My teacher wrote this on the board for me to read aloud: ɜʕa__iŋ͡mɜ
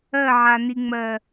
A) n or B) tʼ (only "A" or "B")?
A